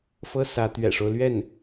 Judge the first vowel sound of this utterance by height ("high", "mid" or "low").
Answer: mid